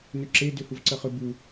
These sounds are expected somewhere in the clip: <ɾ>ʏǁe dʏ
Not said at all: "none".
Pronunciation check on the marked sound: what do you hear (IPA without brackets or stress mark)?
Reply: n